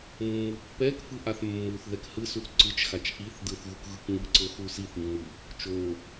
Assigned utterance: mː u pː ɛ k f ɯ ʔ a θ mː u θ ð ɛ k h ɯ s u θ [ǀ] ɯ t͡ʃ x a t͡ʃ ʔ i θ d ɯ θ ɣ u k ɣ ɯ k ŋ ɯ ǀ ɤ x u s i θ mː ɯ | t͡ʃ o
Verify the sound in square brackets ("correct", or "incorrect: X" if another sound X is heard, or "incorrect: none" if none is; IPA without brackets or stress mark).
correct